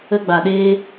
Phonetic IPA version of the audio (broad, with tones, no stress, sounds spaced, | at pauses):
ə˧ ɡ͡b a˨ ɗ eː˧